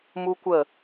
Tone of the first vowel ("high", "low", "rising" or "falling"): high